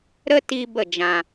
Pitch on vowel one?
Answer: high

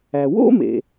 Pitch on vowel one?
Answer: low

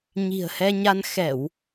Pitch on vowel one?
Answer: low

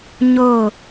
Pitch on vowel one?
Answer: falling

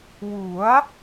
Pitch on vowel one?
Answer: rising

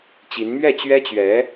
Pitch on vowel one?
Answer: rising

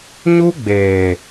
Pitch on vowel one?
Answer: high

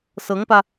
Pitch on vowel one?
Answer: rising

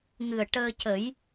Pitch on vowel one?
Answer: low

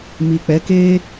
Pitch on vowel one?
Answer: low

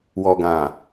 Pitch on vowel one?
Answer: low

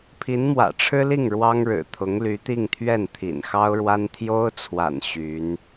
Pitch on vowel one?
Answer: rising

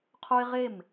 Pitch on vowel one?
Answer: high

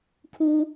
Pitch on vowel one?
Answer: low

